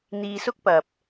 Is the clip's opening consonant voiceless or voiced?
voiced